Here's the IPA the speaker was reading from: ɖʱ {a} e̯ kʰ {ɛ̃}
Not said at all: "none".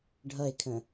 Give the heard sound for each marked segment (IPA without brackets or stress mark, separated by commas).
ʌ, ə̃